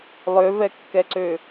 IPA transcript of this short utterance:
lˠøvɛkːɛǀø

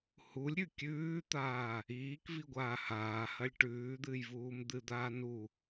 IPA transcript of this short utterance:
hulʲɾʲʉ kʲʉːt̪aː | iːkviɡʷaː haːhɐlʲ ʈʉːd̪ɨːjvuːm d̪ɨd̪aː nu

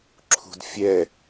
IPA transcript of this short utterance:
ǁʰṳdfʲɛ

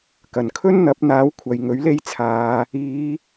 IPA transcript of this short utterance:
kɐ˨˩nkʰɵ˥nn̪ɐ˨˥p̚n̪aː˨˥w kʷʰɐ˨jŋɵ˨˥ɥle˥jt͡sʰaː˨˧ | iː˨˧

